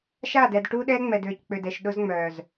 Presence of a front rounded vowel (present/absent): present